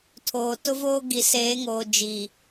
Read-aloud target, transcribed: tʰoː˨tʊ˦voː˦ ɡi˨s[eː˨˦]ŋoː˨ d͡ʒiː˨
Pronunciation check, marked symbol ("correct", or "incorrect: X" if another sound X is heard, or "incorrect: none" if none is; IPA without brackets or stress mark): correct